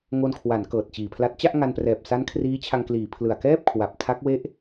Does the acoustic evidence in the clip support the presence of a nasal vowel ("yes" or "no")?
no